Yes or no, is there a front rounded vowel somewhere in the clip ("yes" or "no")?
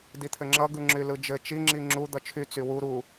yes